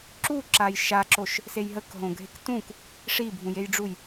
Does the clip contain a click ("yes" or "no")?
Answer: yes